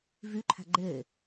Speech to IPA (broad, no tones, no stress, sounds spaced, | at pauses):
v y ǃʰ æ̤ ɡ͡ǃ e